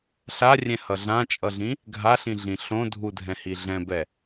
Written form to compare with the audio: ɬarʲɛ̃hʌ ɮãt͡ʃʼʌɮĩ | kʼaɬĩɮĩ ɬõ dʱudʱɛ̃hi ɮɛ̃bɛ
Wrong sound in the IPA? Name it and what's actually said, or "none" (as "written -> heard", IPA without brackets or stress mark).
kʼ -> ɡʱ